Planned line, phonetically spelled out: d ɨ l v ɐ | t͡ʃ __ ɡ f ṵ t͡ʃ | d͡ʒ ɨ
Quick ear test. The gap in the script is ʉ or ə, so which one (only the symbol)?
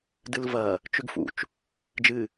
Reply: ʉ